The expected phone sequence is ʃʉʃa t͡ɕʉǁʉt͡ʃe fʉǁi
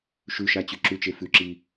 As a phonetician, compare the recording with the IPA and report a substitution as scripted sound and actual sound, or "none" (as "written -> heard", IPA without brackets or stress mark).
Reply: none